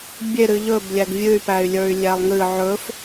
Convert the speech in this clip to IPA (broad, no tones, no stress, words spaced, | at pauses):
bʲe ɾɨʎɵb lʲæɡvʲɨy̯ pæy̯lʲə˞y̯lʲælˠŋɨ ʕɵf